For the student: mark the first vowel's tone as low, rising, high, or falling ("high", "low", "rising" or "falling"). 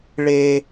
high